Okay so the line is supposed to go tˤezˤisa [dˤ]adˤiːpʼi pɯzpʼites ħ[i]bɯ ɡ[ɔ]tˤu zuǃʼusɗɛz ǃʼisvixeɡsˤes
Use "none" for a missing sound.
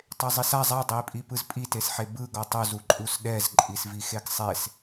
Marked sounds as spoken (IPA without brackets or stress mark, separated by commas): zˤ, e, ɔ